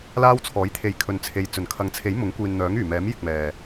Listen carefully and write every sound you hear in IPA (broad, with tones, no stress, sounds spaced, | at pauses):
l aː˥ w t͡sʰ ɔː˨˥ j t̪ʰ e˨˧ j kʰ ɵ˨˧ n t͡sʰ e˨˧ j t͡s ɵ˨˩ n kʰ ɐ˨ ŋ t͡sʰ e˨˥ j m ʊ˨˥ ŋ kʷ iː˨ n n̪ œː˨˥ ŋ yː˨˩ m ɛː˨˥ m j ɪ˧ k̚ m ɛː˨